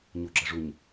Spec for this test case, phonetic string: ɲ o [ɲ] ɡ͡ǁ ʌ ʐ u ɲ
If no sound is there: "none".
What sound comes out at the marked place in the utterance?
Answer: none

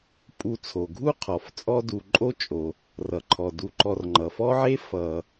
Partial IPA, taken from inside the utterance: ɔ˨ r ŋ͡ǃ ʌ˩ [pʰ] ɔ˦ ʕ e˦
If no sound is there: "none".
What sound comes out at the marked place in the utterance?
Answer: f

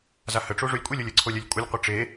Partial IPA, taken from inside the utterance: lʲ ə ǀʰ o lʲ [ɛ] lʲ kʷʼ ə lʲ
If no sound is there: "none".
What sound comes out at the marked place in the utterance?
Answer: ɛ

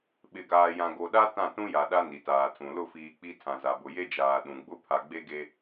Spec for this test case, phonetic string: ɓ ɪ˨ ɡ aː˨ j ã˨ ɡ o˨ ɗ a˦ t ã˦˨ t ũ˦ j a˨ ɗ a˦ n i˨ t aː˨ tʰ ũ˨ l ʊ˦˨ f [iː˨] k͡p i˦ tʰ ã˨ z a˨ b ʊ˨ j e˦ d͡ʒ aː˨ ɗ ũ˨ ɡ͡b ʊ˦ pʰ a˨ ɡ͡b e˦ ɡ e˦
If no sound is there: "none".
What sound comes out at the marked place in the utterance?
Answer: iː˨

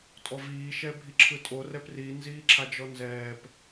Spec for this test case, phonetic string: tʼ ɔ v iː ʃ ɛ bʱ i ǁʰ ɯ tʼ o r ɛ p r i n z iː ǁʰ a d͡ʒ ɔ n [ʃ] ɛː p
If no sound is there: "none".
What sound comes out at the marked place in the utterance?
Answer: z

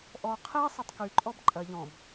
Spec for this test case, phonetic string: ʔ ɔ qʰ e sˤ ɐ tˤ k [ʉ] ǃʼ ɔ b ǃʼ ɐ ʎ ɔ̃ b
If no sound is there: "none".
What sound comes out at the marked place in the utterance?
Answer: ʉ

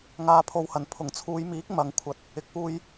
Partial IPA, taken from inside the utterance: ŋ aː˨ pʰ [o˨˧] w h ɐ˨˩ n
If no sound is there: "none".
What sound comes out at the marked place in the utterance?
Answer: o˨˧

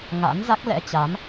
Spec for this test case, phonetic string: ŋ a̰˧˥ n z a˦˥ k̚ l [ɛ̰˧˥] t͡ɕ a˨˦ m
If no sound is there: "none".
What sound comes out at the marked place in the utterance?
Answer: ɛ̰˧˥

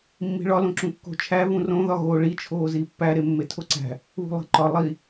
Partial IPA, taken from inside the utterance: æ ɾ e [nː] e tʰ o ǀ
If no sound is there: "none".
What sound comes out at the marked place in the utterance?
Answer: mː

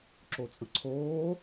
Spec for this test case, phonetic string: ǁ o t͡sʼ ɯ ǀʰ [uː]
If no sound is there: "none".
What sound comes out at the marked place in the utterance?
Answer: oː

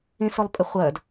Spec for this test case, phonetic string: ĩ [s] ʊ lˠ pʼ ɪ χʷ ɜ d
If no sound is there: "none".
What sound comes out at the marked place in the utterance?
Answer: s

